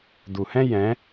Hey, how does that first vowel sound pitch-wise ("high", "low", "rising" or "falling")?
low